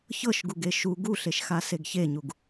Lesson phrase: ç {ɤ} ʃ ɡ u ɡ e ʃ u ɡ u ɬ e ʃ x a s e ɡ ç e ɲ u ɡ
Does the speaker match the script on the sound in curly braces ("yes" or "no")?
yes